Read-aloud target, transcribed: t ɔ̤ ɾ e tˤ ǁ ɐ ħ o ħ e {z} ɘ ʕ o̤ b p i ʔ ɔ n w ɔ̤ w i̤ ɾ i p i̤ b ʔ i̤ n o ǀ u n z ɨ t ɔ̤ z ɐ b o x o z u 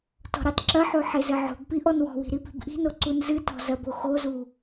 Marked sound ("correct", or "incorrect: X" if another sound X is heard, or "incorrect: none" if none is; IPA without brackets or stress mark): correct